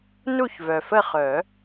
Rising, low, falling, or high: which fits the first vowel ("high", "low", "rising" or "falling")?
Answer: falling